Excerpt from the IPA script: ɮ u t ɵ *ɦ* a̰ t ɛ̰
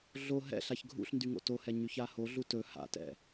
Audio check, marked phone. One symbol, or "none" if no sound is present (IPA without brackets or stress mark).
h